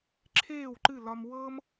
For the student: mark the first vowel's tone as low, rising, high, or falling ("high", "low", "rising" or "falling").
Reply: falling